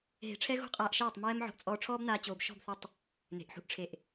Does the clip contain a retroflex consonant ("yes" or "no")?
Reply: yes